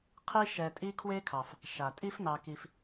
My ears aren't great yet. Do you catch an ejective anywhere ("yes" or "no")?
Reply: yes